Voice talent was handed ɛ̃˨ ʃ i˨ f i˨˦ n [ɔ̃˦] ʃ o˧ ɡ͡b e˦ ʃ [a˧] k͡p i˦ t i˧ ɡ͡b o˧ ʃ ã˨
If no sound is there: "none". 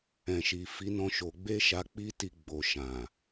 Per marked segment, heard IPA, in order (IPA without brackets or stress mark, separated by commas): ɔ̃˦, a˧